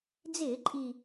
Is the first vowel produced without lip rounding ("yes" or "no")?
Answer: yes